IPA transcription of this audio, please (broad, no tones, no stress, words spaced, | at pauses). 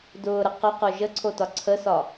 dʊːɾə qʊqo ʒəǀʰotɒ ǀʰəsɒ